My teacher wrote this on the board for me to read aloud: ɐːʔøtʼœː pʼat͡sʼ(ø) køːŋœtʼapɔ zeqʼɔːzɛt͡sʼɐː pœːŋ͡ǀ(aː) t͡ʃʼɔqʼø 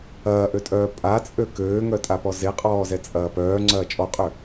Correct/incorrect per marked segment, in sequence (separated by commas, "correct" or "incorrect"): correct, incorrect